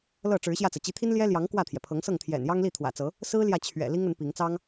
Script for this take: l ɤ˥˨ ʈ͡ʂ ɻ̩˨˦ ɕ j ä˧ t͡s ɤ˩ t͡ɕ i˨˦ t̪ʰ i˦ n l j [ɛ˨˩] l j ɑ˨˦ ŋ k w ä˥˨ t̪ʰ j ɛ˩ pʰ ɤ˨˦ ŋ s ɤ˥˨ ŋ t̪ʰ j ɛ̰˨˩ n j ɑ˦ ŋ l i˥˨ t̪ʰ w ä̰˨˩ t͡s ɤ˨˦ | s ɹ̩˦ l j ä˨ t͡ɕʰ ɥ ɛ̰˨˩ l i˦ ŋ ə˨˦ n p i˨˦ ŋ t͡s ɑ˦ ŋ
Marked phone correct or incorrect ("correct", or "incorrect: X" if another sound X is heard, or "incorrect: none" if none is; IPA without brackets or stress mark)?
incorrect: ɛ˦